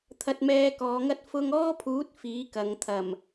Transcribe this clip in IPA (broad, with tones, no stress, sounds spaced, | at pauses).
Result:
t̪ʰ ɐ˧ t̚ m ɛː˧ k ɔː˨˧ ŋ ɐ˥ t̚ f ʊ˧ ŋ ɔː˥ pʰ uː˨˥ t̚ f iː˨˥ k ɐ˨ ŋ t̪ʰ ɐ˨˩ m